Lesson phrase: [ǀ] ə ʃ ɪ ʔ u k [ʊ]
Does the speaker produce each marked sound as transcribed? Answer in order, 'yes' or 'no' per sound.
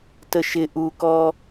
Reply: no, no

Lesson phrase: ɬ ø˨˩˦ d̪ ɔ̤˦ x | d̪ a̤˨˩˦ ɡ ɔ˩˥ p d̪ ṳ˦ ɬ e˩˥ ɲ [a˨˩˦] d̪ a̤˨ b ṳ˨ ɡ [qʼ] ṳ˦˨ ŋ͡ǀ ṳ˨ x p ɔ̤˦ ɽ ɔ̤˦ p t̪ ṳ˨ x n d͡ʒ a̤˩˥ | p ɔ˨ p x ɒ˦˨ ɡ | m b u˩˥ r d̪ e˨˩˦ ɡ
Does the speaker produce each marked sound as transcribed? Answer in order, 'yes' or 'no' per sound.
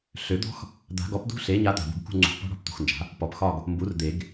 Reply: no, no

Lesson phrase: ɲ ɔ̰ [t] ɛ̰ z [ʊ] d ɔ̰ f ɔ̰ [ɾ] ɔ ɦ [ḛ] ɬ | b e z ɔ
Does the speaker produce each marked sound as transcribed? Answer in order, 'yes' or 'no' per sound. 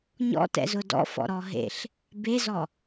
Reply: yes, yes, yes, yes

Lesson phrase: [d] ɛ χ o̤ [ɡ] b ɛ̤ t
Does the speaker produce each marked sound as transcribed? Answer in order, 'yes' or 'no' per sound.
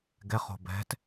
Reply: no, no

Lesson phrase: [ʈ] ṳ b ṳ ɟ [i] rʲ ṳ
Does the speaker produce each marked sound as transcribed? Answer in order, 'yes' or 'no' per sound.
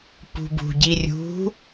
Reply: no, yes

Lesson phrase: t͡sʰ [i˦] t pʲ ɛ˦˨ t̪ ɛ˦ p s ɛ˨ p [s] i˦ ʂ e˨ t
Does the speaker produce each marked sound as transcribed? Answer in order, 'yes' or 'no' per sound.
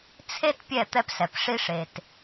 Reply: no, no

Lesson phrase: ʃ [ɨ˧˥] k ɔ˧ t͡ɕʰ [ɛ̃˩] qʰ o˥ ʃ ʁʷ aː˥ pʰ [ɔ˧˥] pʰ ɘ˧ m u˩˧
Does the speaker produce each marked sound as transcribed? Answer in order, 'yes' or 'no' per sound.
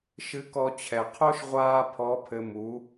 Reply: yes, no, yes

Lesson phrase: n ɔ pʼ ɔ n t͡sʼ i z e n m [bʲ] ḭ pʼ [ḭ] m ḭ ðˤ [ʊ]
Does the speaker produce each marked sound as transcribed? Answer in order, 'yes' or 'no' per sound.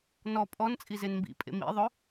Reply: no, no, yes

